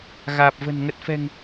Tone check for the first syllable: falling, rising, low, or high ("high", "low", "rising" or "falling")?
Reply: low